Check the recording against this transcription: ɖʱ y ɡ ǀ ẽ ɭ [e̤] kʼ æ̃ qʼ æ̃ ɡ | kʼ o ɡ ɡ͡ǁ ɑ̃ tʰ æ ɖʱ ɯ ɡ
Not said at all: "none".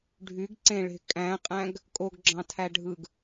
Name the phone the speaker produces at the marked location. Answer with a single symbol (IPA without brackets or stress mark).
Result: e̤